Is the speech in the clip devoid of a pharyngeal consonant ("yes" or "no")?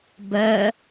yes